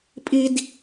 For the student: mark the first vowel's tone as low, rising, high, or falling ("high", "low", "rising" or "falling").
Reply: high